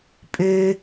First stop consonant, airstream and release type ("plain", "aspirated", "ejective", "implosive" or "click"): ejective